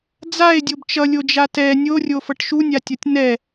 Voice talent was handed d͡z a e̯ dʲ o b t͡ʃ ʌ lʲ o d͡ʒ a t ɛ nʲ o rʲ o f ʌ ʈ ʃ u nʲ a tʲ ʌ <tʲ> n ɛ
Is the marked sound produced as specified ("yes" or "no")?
yes